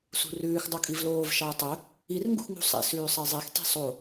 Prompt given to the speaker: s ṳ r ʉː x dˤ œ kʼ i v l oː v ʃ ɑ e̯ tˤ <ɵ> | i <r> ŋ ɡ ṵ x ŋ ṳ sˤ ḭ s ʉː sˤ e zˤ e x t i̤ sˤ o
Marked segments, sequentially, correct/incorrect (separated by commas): correct, correct